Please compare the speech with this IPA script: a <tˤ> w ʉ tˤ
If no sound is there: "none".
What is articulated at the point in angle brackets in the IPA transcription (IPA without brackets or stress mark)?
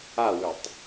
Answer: none